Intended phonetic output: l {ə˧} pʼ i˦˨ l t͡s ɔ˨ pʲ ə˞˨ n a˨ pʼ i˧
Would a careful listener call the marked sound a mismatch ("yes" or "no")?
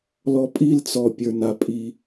yes